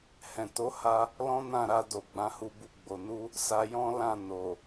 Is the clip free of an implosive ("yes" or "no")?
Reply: yes